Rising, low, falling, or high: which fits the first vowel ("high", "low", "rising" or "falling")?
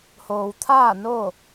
low